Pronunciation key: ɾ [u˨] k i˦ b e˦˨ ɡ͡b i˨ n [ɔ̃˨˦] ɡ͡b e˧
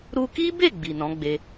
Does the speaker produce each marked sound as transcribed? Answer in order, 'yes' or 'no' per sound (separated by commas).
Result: no, yes